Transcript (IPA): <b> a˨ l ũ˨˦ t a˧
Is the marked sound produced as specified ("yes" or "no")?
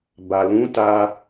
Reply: yes